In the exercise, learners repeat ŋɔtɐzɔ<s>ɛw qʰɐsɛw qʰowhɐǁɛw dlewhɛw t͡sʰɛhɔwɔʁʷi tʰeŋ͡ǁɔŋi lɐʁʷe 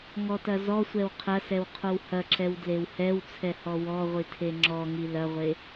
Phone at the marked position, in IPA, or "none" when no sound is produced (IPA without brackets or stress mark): sʷ